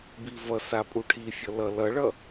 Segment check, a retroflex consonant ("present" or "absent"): present